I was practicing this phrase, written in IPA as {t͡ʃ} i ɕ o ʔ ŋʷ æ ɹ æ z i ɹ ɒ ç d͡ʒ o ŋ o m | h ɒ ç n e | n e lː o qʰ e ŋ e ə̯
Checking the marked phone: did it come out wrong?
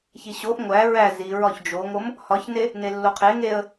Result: yes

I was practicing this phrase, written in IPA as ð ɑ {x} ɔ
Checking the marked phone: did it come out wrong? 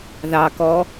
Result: yes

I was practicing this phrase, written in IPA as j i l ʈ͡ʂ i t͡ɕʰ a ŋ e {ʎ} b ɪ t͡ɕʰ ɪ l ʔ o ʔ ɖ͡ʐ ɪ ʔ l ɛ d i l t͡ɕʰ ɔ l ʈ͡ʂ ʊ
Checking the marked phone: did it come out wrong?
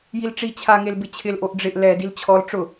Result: yes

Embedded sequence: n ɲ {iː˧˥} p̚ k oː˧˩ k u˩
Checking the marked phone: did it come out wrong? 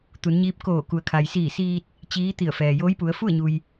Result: no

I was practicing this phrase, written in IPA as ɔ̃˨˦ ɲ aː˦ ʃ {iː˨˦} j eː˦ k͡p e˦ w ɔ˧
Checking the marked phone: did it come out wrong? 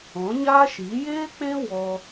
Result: no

